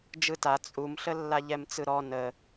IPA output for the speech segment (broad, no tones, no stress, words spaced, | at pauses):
d͡ʒɯta t͡sʼumɬə lːaʎɛmt͡sɯɾɔ nə